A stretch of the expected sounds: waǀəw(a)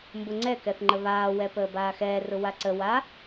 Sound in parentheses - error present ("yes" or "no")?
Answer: no